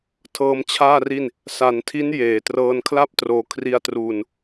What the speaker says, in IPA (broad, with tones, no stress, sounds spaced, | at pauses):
tʰ ɤː˧ m t͡ɕʰ aː˥˩ r i˥˩ n | s a˩˦ n tʰ i˦˥ n j eː˩˦ t r ɤː˧ n kʰ l a˥˩ p̚ t r oː˧ kʰ r i˧ a̯ t r uː˧ n